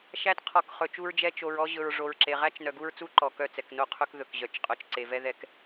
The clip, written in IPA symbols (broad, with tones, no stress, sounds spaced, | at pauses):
ʃ æ˦ t qʰ ɔ˨˦ k χ ɵ˨ t͡ʃ u˦ ɹ d͡ʒ ɛ˦ t͡ʃ o˨ ɹ ɔ˦ ʑ ɵ˨ ɹ ʐ o˨ ɹ ǁ e˨ ʁ æ˦ t͡ʃ n œ˨ ɡ u˦ ɹ t͡s u˦ ǃ ɔ˨ k œ˦˨ t͡s ɛ˨ k n o˦ qʰ ɵ˦ k ð ɵ˨ k ʑ œ˨˦ t͡ʃ qʼ œ˨ t͡ʃ ǀ e˨ v ɛ˦ ð ɛ˦ k